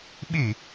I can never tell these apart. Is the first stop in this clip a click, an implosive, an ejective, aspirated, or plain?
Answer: implosive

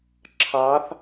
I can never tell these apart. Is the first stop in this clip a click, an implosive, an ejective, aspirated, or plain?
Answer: click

